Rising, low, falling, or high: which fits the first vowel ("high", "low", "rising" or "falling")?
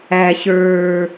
low